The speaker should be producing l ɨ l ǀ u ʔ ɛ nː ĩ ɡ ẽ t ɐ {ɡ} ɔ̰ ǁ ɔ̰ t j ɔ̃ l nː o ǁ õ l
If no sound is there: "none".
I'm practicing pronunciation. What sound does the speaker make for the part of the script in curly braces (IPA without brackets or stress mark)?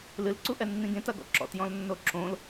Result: ɡ